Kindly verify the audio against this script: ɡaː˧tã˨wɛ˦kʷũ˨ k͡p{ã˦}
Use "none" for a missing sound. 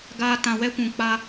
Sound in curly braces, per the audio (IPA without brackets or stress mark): a˦